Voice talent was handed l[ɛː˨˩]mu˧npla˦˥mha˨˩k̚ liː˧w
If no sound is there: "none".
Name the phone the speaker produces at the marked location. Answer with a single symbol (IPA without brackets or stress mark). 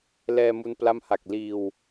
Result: ɛː˧